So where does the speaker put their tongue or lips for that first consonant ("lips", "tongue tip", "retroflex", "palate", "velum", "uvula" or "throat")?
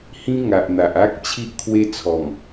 throat